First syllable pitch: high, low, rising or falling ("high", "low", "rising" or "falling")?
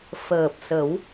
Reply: low